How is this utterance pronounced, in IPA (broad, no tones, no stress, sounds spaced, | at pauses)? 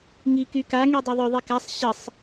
ŋ i k y k a ŋ y dˤ ø ðˤ ø ðˤ i k a sˤ ɕ ə sˤ